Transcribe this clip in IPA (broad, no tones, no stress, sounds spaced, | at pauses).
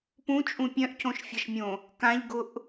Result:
p ũ t͡ʃʼ ũ pʲ œ̃ ʔ cʰ õ ʃ fʲ ɐ ʃ mʲ õ | k ã ʎ ɡ ʊ ʔ